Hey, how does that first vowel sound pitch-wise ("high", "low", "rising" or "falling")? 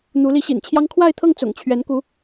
rising